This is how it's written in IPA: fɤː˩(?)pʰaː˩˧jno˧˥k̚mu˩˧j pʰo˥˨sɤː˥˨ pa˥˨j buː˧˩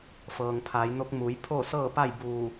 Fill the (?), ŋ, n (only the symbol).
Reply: ŋ